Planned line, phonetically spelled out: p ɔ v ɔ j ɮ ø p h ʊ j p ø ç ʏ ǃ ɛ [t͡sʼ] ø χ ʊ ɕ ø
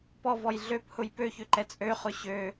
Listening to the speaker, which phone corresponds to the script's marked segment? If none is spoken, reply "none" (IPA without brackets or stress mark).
t͡sʼ